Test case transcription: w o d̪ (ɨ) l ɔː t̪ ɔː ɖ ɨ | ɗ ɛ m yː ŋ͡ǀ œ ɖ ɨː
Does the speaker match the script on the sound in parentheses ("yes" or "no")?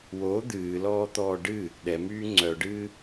no